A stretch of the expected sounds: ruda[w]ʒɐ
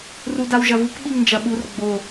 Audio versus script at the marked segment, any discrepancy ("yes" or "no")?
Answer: no